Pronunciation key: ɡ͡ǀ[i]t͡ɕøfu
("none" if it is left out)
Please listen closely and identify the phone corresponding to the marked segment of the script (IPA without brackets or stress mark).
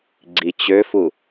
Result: i